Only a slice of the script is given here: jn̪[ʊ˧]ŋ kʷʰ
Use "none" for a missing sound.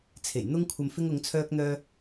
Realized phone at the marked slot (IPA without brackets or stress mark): ʊ˧